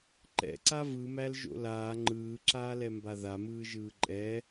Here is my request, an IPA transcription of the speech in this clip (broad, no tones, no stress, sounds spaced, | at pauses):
ǃ ɛ̰ ǀ a v ɯ m æ l ʒ o̰ l aː ŋ͡ǃ ɯː ǁ aː l ɛ m b a ð a m ɯː ʒ ɯː ǃʼ ɛ